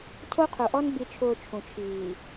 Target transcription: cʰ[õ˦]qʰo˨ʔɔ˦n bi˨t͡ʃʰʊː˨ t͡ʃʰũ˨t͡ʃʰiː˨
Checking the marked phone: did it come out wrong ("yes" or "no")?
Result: yes